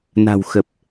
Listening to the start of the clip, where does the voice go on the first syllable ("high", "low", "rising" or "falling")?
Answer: low